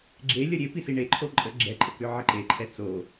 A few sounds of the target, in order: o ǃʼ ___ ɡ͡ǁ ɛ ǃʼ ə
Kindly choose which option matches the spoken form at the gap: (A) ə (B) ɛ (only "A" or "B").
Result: A